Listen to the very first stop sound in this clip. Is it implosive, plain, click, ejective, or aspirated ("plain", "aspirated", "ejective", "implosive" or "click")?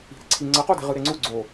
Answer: click